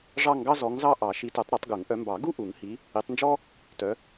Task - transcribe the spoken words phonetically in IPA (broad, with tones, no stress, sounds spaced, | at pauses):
ʐ ɑ˥˧ ŋ ɡ ɑ˥ z ɔ˨˦ ŋ z ɑ˥˧ ʔ ɑ˨˩˦ ʃ i˨˦ t œ˨˩˦ tˤ ɾ u˨˩˦ tˤ ɡ u˨˩˦ ŋ ʔ œ˨˦ m b ɑ˨˩˦ ɡ u˥˧ ʔ u˨˩˦ ŋ h i˨˦ | i˨˦ tˤ n d͡ʒ ɔ˥ | t œ˨˦